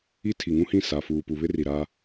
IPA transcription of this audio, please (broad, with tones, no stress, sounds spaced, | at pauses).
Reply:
i˦ tʰ i˨ ŋ ũ˦ h ĩ˦˨ s a˨ f uː˨ p u˨ β ɪ˦ r i˨ ɾ a˦